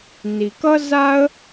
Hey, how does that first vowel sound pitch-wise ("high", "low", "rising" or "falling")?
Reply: low